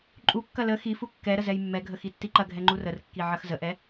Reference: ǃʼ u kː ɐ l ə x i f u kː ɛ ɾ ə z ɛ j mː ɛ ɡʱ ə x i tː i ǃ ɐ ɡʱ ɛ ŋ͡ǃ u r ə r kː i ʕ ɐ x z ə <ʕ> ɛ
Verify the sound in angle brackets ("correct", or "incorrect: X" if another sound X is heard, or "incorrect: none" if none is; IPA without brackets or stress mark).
incorrect: ʔ